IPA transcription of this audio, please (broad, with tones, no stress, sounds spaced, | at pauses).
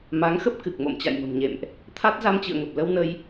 m a˨˦ ŋ x ə˦˥ p̚ k ɨ˨˩ k̚ m o̰˧˨ m t͡ɕ a̰˧˨ j m ə̤˨˩ m ɲ ḛ˧˨ m ʔ | t̪ʰ a˦˥ t̚ z a˧ m t͡ɕ ɨ̰˧˨ ə̯ ŋ ə˨˩ p̚ l ə˧ w n ə˧ j